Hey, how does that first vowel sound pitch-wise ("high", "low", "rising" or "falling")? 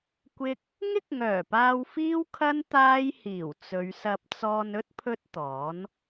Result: high